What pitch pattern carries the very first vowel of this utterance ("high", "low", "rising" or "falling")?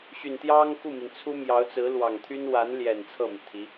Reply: low